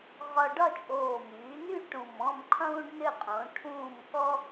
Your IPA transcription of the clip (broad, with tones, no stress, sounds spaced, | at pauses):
ʁ ɒ˦ ɖ ɒ˦˨ t͡ʃʼ oː˨˩ m yː˩˧ n y˦˨ ʈ ũ˨˩ m ɔ̃˦˨ m qʰ ũː˦ ɖ n ʏ˦˨ qʼ õ˩˧ ʈʰ ũː˦˨ m k ɔ˦